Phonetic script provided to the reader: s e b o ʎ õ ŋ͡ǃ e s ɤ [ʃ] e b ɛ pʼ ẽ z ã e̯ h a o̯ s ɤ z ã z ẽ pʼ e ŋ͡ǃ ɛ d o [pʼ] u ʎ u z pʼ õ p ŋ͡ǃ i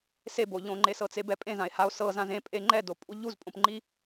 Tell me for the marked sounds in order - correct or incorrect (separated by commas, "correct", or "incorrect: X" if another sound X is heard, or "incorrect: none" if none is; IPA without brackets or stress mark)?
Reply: incorrect: t͡s, correct